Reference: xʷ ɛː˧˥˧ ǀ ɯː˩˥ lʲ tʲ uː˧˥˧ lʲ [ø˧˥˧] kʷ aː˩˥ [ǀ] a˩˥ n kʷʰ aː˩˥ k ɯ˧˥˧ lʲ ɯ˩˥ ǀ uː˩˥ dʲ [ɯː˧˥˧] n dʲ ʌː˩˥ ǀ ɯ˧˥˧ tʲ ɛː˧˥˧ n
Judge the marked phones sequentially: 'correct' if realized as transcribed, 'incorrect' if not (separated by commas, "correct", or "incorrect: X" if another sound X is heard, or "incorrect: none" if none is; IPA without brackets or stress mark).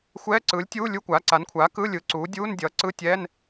incorrect: u˧˥˧, correct, incorrect: uː˧˥˧